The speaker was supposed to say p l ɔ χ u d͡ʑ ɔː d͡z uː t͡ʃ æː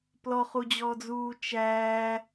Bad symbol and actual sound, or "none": none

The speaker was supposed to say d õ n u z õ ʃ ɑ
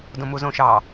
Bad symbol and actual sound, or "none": n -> m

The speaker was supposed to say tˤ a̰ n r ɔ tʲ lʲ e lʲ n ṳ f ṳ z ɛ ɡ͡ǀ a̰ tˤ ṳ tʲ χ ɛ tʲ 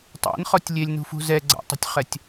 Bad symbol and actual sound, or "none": r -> χ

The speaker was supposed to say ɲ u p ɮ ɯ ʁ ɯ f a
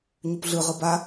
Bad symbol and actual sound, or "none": f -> b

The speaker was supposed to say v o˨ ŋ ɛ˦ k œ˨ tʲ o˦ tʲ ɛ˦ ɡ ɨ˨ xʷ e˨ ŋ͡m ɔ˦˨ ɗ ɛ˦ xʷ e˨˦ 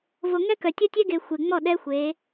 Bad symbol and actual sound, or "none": ɨ˨ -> e˨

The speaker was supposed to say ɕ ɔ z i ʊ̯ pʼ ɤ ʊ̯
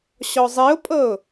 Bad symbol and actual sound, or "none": z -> zˤ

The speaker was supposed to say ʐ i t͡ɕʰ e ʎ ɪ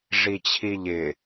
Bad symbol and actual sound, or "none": e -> i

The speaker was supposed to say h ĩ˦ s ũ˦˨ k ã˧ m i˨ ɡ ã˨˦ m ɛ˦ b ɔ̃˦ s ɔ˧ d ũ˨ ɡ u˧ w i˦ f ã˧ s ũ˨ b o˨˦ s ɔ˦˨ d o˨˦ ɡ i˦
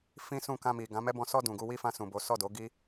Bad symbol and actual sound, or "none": h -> f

